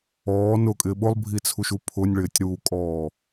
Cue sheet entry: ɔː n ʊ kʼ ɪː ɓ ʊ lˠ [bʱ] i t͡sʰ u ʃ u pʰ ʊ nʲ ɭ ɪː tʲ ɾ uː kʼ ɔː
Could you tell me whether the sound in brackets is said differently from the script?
no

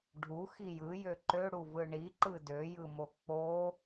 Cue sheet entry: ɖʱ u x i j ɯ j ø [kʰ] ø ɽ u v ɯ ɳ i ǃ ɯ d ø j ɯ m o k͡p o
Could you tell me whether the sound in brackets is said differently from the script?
yes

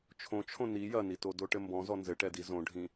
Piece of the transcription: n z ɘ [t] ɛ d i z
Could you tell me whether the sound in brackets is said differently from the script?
yes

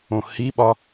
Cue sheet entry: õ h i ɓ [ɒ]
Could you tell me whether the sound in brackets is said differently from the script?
no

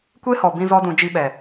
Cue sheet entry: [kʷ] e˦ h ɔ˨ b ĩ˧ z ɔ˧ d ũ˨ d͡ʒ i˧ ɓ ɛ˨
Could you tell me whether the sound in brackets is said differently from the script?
no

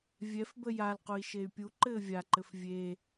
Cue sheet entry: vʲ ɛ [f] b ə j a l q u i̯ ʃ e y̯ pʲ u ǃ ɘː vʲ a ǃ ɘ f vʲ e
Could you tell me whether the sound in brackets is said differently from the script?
no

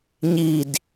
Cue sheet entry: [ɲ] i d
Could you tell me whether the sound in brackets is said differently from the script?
no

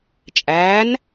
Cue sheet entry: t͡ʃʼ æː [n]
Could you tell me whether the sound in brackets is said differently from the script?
no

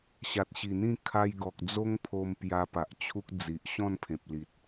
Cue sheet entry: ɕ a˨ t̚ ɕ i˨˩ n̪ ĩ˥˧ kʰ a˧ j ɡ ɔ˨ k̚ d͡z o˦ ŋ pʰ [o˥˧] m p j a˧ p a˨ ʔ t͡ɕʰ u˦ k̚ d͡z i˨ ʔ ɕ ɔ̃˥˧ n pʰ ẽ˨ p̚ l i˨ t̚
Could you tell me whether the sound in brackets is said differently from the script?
yes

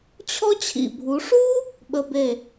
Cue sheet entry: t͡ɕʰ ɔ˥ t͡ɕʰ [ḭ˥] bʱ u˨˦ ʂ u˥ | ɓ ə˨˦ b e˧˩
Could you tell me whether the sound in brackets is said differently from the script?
yes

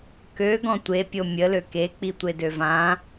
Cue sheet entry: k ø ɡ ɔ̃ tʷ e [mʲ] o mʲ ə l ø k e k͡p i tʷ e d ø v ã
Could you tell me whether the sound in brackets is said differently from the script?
yes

